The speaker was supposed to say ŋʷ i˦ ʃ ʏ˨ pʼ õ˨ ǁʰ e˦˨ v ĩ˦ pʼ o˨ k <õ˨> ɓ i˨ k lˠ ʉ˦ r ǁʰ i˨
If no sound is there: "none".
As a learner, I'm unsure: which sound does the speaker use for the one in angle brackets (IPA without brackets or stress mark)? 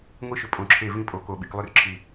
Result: o˨